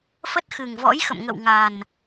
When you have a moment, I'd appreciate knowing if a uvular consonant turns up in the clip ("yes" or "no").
no